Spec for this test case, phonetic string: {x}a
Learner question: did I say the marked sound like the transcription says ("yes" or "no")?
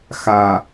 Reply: yes